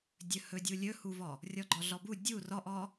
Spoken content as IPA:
dʲ ɵ h ɵ dʲ u lʲ ɵ h u v ɔ | rʲ ɔ ɡ͡ǃ ɔ ɮ ɔ b u dʲ u r ɔ ʔ ɔ

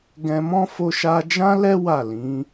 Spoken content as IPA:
ɡ ɛ̃˧ m ɔ̃˦ f o˧ ʃ a˧ d͡ʒ ã˦ l ɛ˦ w a˦˨ l ĩ˨˦

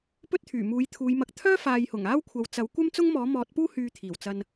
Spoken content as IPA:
p ɵ˥ t̚ t̪ʰ yː˨˩ m uː˨˥ j t̪ʰ uː˨˧ j m ɐ˧ k̚ t̪ʰ œː˥ f aː˨ j h ʊ˨˩ ŋ aː˥ w kʷʰ ɐ˨ w t͡s ɐ˨˥ w kʷ ɐ˥ m t͡s ʊ˥ ŋ m ɔː˨˥ m ɔː˨˥ t̚ p uː˥ h yː˧ t̪ʰ iː˨˩ w t͡s ɐ˧ n

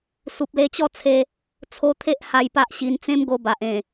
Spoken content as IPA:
s u˨ p̚ l e˧ t͡ɕ ɔ˥˧ t͡sʰ e˧ | t͡sʰ o˧ t̪ʰ e˦ ʔ h a˧ j p a˦ ʔ ɕ i˧ n t͡s ẽ˦ m ɡ o˧ b a˨ ʔ ẽ˨˩

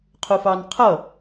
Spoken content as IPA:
qʰ ʊ f ɑ n qʰ ʌ

